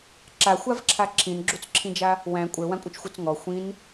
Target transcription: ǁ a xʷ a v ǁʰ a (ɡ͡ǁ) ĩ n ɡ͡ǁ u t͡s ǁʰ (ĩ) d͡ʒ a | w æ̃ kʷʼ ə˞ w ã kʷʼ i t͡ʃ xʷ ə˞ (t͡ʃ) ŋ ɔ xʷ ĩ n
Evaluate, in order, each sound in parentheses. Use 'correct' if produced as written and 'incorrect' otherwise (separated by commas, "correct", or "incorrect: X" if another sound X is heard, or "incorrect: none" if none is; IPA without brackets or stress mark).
incorrect: ǁʰ, correct, incorrect: t͡s